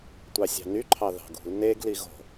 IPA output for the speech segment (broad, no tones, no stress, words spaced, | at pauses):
tʷɑsʲɑ̤ny ǃʰɑðɑ̤ɡṳl neɡ liɣo̤